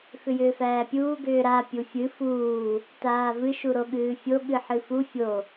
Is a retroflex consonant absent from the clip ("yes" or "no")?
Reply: yes